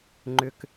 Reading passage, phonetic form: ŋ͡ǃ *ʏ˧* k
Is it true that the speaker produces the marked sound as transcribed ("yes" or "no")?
yes